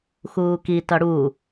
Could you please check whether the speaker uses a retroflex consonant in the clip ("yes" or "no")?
yes